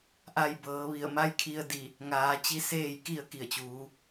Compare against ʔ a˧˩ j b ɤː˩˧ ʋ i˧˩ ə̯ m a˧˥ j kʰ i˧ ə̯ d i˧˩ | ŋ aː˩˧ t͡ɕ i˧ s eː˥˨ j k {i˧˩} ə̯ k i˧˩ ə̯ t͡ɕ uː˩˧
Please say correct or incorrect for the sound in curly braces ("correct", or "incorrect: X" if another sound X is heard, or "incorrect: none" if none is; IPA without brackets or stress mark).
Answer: incorrect: i˥˨